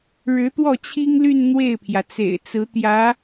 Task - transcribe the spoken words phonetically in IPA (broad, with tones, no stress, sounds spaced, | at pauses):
ɻ ɻ̩˧˥ t̪ w ɔ˥˩ t͡ɕʰ i˥ ŋ l y˥˧ n n̪ w e˥˩ ɪ̯ pʰ j ä˩ t͡s ḛ˨˩ ɪ̯ t͡s ɹ̩˧˥ t̪ j ä˧˥